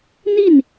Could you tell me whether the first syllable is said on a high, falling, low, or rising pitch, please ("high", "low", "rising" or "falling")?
falling